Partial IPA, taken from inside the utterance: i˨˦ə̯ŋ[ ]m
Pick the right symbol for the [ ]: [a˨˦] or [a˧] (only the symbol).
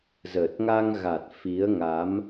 a˨˦